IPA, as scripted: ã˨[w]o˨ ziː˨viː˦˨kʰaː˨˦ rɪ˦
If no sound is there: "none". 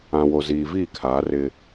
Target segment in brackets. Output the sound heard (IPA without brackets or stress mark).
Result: w